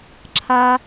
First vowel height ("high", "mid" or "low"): low